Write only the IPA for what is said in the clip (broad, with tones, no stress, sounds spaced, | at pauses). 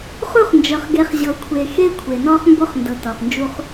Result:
χ u˦˨ χ n d͡ʒ ɤ˨ χ ɡ e˨˦ χ ʑ ɤ˨ kʷʰ e˨ x e˦ kʷʰ e˨ n ɔ˦ χ m b o˦ χ n d ɤ˨ t ɔ˨ χ n d͡ʒ u˦ χ